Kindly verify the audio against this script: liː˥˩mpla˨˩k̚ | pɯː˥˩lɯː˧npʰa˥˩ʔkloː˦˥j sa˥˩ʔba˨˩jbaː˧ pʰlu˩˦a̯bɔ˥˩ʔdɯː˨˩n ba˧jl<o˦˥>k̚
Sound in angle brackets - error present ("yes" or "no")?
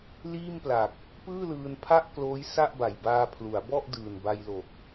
yes